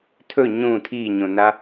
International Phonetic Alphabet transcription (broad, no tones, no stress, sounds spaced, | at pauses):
tʰ ɵ ɲ ũ tʰ i ɲ õ n a